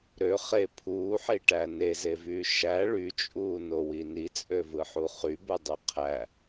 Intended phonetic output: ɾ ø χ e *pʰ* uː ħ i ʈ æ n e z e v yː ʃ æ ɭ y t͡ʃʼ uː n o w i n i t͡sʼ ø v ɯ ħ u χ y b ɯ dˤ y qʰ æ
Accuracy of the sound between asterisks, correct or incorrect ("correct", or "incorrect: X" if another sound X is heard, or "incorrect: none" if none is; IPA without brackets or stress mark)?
correct